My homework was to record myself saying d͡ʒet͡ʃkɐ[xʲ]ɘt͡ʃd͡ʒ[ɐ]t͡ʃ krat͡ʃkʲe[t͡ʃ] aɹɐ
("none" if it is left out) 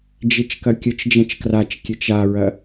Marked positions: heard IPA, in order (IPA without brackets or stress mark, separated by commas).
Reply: kʲ, ɐ̃, t͡ʃ